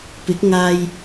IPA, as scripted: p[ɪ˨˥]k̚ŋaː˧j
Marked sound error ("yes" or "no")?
no